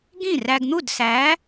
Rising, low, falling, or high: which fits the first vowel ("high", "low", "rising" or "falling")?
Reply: falling